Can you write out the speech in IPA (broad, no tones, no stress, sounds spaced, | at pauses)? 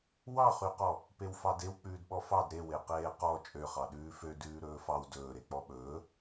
w ɑ χ y q ɔ | p e w f ɑ d e w k͡p ʉː d ɓ ɔ f ɑ d ɾ e w e q eː q ɔ t͡ʃʼ ø χ ɑ ɗ ʉː f ø d ʉː ɾ ɵː f ɑ w d ɵː ɾ e k͡p ɔ ɓ ɵː